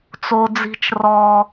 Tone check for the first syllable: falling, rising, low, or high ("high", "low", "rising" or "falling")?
high